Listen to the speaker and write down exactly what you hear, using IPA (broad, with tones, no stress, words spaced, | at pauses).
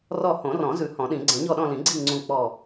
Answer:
rɔ˦˨ hõ˨˩˦rɔ̃˨˩˦ zʉ˨˩˦hɔ̃˨˩˦ɗĩ˨˩˦ ɡ͡ǀɛ̃˨˩˦ɲɔ˦˨ɗɔ̃˦˨lĩ˨˩˦ ɡ͡ǀi˦˨ ŋ͡ǀũ˦˨ k͡pɔ˦˨